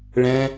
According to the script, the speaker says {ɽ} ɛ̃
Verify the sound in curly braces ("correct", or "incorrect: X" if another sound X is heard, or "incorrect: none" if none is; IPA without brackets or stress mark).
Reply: incorrect: ɭ